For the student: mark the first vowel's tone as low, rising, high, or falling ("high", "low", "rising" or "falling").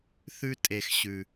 high